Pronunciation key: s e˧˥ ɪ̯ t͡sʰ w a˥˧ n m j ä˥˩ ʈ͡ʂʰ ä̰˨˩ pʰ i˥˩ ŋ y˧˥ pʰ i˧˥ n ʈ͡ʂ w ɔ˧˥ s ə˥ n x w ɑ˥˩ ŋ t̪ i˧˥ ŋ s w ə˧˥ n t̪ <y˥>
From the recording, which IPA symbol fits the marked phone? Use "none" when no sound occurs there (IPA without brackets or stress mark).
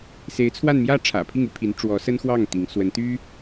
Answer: y˥